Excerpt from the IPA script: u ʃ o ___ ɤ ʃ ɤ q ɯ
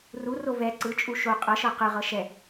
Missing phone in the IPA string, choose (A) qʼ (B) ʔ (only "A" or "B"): A